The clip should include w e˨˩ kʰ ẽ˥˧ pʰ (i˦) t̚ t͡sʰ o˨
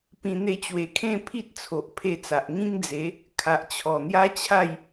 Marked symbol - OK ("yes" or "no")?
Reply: yes